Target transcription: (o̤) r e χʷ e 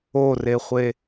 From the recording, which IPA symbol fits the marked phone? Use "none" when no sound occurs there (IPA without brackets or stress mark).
o